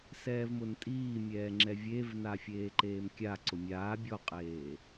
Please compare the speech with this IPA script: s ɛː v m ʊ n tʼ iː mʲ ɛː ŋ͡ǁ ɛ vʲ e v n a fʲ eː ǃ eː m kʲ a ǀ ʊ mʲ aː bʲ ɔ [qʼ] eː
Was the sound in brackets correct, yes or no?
yes